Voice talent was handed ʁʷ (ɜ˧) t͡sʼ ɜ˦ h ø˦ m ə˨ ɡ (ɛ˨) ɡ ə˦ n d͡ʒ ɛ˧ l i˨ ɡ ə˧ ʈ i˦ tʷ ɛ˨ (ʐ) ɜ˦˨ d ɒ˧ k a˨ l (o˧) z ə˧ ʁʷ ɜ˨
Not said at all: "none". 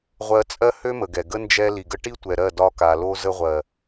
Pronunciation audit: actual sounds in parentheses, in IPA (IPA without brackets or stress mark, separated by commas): ɜ˧, ɛ˨, ɾ, o˧